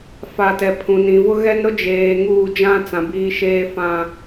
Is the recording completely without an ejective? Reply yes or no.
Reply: yes